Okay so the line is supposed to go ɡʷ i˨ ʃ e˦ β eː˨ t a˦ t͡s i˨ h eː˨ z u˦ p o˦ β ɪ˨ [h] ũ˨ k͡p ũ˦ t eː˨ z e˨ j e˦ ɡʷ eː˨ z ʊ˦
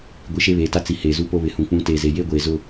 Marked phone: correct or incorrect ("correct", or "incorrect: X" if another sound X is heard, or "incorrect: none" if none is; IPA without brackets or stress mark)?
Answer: correct